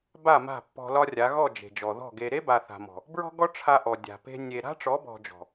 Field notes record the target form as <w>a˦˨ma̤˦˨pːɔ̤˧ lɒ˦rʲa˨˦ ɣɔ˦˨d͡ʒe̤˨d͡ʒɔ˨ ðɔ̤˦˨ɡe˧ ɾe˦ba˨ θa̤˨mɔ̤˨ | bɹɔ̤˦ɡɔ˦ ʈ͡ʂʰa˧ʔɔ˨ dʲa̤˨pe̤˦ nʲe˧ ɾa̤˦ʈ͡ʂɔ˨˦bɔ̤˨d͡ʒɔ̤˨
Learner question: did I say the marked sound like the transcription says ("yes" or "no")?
no